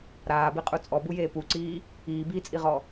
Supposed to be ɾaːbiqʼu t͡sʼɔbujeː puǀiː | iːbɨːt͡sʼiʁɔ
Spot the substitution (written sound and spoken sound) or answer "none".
ɨː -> iː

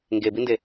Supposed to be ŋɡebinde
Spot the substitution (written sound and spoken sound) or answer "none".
none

